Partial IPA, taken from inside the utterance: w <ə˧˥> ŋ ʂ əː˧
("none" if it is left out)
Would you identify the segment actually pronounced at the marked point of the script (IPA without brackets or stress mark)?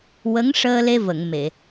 ə˧˥